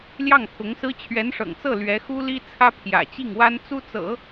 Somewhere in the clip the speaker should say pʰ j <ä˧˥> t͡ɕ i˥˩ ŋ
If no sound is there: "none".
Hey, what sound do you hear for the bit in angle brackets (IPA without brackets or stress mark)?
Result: ä̰˨˩